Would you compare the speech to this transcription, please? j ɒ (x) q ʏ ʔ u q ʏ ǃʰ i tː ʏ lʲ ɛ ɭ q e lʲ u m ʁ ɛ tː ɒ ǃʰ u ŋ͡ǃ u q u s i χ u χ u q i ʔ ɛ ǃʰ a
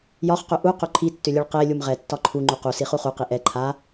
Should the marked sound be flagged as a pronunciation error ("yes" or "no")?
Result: yes